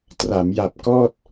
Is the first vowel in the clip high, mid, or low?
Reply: low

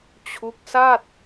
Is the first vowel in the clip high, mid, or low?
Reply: high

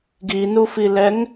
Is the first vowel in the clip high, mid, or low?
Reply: high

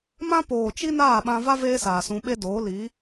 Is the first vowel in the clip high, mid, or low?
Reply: low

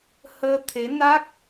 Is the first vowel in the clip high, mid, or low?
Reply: mid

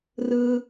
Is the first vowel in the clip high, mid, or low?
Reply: high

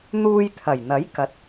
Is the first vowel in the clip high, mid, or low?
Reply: high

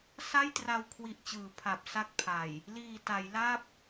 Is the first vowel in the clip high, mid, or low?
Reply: low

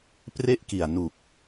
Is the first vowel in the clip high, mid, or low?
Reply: mid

